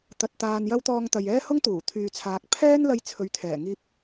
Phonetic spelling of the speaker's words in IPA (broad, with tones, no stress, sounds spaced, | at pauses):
t̪ ɐ˧ t̚ t̪ aː˧ n j ɐ˥ w t̪ ɔː˧ ŋ t̪ ɐ˨ j ɛː˥ h ʊ˥ ŋ t̪ uː˨˩ t̪ʰ yː˨ t͡sʰ aː˨ k̚ pʰ ɛː˥ n l ɐ˧ j t͡sʰ ɵ˨ ɥ t̪ʰ ɛː˨˩ ŋ iː˧ p̚